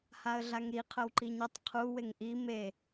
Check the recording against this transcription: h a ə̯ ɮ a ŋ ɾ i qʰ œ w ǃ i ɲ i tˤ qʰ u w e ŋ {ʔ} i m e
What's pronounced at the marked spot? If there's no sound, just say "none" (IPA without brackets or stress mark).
ʔ